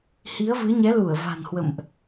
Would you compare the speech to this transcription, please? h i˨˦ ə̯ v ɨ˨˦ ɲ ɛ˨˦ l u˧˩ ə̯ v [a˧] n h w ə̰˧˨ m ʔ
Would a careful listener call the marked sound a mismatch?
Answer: yes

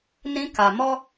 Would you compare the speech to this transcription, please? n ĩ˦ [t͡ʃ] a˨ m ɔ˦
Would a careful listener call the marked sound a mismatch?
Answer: yes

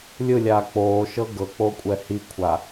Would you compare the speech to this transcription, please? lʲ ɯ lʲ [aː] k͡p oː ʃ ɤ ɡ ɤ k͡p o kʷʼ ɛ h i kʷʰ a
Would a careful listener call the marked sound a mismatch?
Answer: no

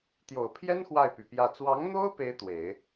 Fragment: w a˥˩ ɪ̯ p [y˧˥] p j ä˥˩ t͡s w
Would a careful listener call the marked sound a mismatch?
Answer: yes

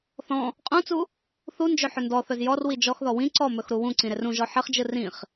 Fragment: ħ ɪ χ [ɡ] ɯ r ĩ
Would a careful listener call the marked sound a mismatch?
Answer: yes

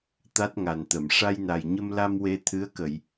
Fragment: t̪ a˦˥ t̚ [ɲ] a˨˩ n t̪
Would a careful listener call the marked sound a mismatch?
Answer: yes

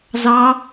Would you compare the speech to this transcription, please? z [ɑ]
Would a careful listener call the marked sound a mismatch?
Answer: no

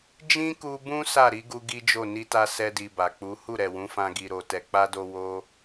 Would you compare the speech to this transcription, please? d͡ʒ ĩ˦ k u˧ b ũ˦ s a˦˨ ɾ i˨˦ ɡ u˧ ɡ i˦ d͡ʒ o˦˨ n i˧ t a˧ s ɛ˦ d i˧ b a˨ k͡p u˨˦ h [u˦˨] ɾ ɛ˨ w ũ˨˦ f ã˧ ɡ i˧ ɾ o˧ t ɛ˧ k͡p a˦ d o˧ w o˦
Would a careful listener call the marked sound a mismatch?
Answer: no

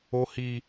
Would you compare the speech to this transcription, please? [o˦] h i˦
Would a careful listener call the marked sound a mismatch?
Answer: no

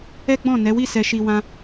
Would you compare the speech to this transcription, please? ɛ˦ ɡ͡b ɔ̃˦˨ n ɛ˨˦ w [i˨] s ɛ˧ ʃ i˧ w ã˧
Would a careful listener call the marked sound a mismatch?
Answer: yes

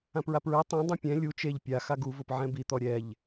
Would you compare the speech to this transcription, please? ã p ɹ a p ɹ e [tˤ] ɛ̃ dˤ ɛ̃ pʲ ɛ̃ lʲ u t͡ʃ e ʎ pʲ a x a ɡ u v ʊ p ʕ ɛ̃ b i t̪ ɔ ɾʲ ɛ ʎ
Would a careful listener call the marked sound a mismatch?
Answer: no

